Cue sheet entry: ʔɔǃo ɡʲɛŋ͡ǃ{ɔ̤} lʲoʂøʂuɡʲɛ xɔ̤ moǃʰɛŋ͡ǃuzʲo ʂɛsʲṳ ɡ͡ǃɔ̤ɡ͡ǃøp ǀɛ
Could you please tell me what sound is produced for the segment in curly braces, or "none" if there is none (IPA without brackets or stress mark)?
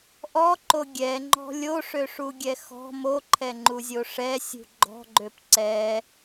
ɔ̤